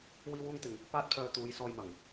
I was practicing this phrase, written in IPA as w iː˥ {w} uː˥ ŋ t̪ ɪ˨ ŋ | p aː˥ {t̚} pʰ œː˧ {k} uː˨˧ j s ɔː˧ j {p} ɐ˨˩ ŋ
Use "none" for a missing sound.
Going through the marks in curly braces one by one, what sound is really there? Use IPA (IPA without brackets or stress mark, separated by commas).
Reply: w, t̚, t̪, m